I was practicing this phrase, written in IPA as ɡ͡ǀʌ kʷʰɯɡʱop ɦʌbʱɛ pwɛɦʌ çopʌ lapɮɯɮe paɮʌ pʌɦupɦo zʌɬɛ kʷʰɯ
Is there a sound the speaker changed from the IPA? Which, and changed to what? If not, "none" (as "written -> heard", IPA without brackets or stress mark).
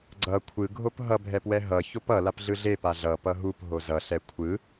none